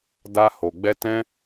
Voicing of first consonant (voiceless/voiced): voiced